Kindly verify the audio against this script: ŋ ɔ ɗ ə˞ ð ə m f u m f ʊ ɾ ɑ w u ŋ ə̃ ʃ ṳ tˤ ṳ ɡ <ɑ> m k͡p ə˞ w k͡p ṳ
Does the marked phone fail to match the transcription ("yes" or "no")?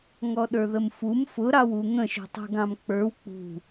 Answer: yes